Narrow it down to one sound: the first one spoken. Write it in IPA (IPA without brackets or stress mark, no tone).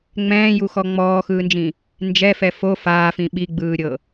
ŋ͡m